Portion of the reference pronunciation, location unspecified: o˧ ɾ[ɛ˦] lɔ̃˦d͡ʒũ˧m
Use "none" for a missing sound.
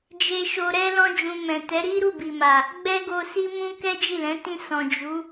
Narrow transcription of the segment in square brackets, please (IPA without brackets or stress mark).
ɛ˦